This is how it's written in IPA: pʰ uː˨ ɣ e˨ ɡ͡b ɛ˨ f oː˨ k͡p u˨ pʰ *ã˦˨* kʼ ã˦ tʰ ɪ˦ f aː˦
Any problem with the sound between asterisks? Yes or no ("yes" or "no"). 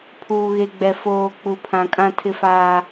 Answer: yes